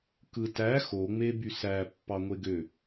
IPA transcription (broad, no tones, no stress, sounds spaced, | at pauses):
k ɯ t æ x o ŋ͡m e b y s æ pː ɑ ŋʷ e ɡ ø